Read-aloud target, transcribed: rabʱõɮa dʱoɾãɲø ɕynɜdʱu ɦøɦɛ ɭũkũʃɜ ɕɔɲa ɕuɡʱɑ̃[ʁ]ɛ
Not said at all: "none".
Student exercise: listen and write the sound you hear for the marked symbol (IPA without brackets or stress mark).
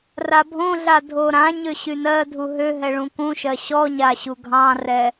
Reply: r